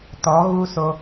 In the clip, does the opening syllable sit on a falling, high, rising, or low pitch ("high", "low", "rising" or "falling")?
rising